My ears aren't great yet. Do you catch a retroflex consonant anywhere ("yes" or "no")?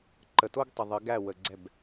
no